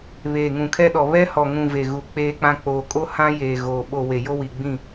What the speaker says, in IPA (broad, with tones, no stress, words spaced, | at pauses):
βeː˨ŋũ˨kʰɛ˦ɗɔ˨ βɛ˦hɔ˨ŋũ˨ ve˨ɣu˨ k͡peː˦k͡pã˦ k͡poː˨kʼo˦ hã˦jeː˨ɣoː˨ ɓo˨ we˨jo˦wi˨ ɡ͡bĩ˦˨